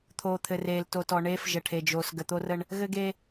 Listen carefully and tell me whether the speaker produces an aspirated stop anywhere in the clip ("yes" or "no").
yes